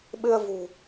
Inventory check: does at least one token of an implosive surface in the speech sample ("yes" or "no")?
yes